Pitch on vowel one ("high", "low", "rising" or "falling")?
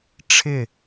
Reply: falling